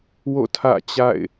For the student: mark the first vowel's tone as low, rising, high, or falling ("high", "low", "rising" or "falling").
falling